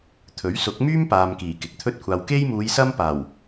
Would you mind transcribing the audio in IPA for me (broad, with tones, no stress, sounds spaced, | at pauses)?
t̪ʰ ɵ˨˥ ɥ s ʊ˨˥ k̚ m yː˥ m p aː˨ m k iː˨˩ k ɪ˨ k̚ t̪ʰ ɵ˥ t̚ kʷʰ aː˧ w k e˥ j m uː˨˧ j s ɐ˥ m p aː˨˩ w